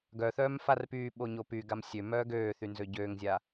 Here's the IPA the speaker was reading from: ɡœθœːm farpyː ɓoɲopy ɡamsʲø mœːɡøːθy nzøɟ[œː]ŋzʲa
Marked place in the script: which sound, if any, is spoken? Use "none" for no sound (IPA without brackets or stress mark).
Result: øː